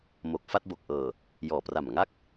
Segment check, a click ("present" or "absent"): absent